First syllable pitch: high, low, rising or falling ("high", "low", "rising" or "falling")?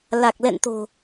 low